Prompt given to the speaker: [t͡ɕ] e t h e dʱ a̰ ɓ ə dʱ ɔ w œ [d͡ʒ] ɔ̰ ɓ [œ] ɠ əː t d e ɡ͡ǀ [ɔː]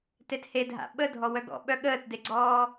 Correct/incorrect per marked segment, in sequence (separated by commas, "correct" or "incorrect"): incorrect, incorrect, correct, correct